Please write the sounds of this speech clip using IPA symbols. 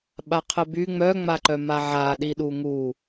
ɓaqʰəby ŋ͡mœ ŋ͡maǃœmaʕa ɗiɗuŋu

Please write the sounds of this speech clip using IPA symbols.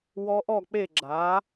wɔ˦˥ʔɔ˥˧k͡pe˥˧ ɡ͡ǁa˨˥

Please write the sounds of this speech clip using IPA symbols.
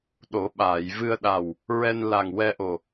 ɗo˨˩˦ ɓaː˨˩˨jvɨ˧ə̯ɗa˨˩w | ɹɛ˧nla˨˩ŋ wɛ˧ʔo˨˩

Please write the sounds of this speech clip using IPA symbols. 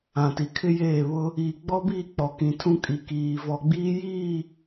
ã˨ti˨kʰɪ˦jeː˦˨ βʊ˦ | iː˨ɡ͡bɔ˦biː˦˨ k͡pɔ˨kĩ˨tʰũ˦ kʼi˨kiː˨ vɔ˨ɡ͡biː˦jiː˦˨

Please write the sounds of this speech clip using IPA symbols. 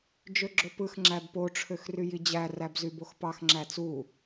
d͡ʒøɡ͡ǁopɯx ŋ͡ǁæbpo ʈ͡ʂʰøxryjid͡ʑæ ræbzyboxpɑx ŋ͡ǁæt͡su

